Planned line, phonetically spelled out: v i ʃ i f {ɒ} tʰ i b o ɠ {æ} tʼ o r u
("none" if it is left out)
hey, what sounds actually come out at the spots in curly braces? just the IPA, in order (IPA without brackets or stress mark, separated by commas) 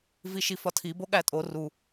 ɒ, æ